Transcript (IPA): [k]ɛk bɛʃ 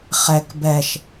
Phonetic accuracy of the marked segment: incorrect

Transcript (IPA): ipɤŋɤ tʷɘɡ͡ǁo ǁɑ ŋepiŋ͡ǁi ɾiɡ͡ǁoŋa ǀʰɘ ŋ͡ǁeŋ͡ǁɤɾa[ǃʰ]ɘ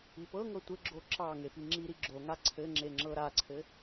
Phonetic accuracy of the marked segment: incorrect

